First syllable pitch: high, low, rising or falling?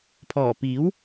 low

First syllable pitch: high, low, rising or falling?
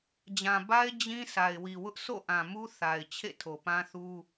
low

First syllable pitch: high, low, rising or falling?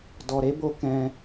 low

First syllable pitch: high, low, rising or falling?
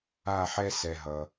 falling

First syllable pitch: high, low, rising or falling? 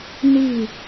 falling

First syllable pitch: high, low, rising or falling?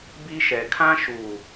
high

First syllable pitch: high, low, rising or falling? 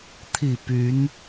low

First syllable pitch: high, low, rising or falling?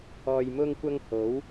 low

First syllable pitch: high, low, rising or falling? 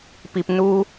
low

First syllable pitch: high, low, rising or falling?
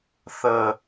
low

